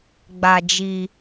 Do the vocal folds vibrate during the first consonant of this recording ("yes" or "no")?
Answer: yes